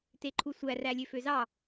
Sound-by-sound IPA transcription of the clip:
t e ǃʰ u sʷ æ r æ lʲ ø f ø z ɑ

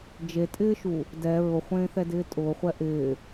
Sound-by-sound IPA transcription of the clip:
d͡ʒ e tʼ ɪː ʃ u | d ɛ ɹ ʊ χʷ ẽː θ ɛ d ɪː tʼ ʊː χʷ ɛ ʔ ɪː

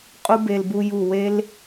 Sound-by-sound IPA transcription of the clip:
qʼ u˦ b e˧ l b u˧ j u˨ w e˧ l

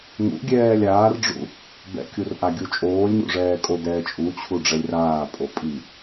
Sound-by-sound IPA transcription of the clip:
ŋ ṵ ɡʲ ɛː lʲ aː r ɖ͡ʐ ṵ | b ɛ̰ kʲ u r ʔ a ɡʲ u t͡ʃʼ oː lʲ ɲ ṵ ʐ ɛː kʼ o d ɛː t͡ʃʼ u t͡ɕʰ u ɖ͡ʐ ɛ lʲ r aː pʼ o pʼ i

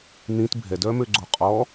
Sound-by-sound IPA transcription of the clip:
n̪ ĩ t bʱ ɛ d œ m ø ɡ͡ǀ o qʼ ɔ

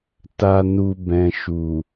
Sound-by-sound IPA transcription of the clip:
t a˧ n u˧ b ɛ̃˨ ʃ u˨

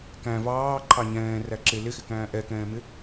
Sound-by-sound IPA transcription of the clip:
k æ̃ v ɑː ǃʰ ɑ ɲ ɛ̃ː r æ ǁ ɪ l ɪ x ɪ k æ̃ː ʔ ɛ k ɛ̃ː m ɪ

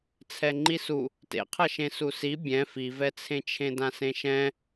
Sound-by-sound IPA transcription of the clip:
t͡sʰ ɛ ŋ͡ǃ i s u | t ḛ qʰ ʌ ʃ ẽ s u s i bʲ ɛ̃ f i v ɛ t͡sʰ ẽ t͡ʃʰ ẽ d ã s ẽ ʃ ɛ̃

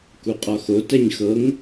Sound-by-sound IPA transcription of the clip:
k u qʼ ɒ x o t ɛ ɲ x ɤ ŋ

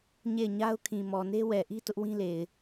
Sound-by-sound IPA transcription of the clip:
ɲ e˦˨ ɪ̯ ɲ a˦ ʊ̯ kʰ ĩ˨ m ɔ˨ n e˦ w ɛ˨ ʔ i˦ t ʊ˦ ʔ w ĩ˦ l e˨ ɪ̯

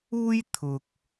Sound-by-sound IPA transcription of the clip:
uː˥ j t̪ʰ ʊ˨ k̚

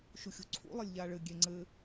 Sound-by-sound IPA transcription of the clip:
ʃ u xʲ ṳ ǀʰ ṵ lˠ ɘ lʲ ʎ a ɭ ɘ ɡʲ e ŋ͡ǀ ɘ

